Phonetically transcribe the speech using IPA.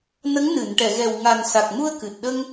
nə˧˥ŋnɨ˨˩˨nʈɛ˨˩˨ɣɛ˨˩w ŋa˨˩nsa˨˩k̚mu˧ə̯ kɨ˨˩t̚ ɗə˧ŋ

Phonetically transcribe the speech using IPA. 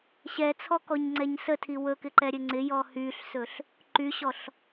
ɕɛt͡sʰɔkɔɲŋ͡ǀɛɲ sətʰi wɵkɪǃɛɾʲɘ ŋ͡ǀɪjɔ hyɬsɵɬ | ǃyɕɔɬ

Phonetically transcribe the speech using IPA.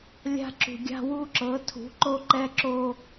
lʲa̤˦ ǁṳ˨ɡʲa̤˦wu˦ǁɤ˨˦ tʰṳ˨˦ǃo˦ ǃɛ˦ǁo˦

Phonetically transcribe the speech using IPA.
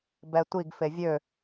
bɛtʷiɡ fevʲø

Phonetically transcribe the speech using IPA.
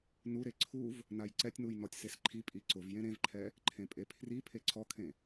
nuɾe ǀʰuv | najǀɛtʲnuj nɔtʲsesǃʰi pʼiǀʊv jẽɾẽvǃʰɛ | ǃʰẽpʼepʰri pʰeǀʰɔkʰẽ

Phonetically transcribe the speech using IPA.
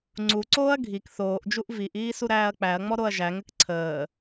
ŋ͡ǀuǀoːɐ̯ ɡʱik θoːʔd͡ʒuʔ viʔiː suɾæːɐ̯k͡pæɐ̯ŋ͡mɔ ɾoɐ̯ʒæŋɘk ǀʰəː

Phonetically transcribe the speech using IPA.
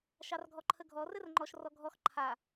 ʃɑrɡʱɔǃʰəɡʱɔ rɘrŋ͡ǃɔʃ rɔɡʱɔx ǃʰa

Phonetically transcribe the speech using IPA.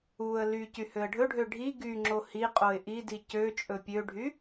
uə̯ ly cyhøə̯ɖʱɵɖʱø ɖʱi ɡyŋ͡ǁo hi qʼoɪ̯ʔidi cøt͡ʃʼɵ pʲøɖʱy

